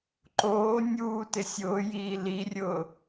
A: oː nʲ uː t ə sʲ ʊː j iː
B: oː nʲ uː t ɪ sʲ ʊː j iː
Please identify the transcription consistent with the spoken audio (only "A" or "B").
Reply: B